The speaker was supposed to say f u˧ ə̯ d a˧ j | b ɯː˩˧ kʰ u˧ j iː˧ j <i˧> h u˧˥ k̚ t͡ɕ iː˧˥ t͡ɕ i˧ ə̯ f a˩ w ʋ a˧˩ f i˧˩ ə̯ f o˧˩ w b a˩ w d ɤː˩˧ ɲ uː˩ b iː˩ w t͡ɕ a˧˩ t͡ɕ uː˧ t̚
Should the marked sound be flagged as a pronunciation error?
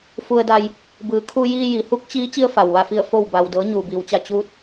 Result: yes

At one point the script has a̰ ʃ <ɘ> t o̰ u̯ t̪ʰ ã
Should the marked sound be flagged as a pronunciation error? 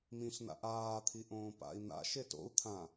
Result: yes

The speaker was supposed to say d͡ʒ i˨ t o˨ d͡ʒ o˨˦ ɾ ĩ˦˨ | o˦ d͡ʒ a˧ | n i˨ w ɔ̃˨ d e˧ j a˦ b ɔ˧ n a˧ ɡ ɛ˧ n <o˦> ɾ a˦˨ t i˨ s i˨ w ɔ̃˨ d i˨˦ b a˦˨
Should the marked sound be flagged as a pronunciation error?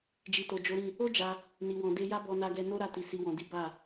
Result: no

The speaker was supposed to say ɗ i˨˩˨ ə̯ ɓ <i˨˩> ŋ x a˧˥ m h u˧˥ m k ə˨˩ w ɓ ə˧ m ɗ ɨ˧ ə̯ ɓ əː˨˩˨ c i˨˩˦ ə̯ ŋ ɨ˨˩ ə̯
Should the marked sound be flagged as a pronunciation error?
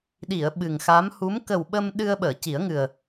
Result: yes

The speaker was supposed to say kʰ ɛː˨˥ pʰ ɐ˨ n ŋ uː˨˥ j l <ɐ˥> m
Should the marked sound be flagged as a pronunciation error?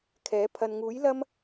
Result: no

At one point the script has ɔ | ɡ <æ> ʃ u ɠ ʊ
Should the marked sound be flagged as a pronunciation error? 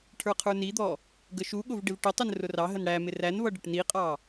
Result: yes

